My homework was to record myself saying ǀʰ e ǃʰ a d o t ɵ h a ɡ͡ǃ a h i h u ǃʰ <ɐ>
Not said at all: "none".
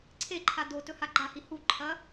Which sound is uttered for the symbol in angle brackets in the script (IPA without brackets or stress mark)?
ɐ